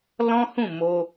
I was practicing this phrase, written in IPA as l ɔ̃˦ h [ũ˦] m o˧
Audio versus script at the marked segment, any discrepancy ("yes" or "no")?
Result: yes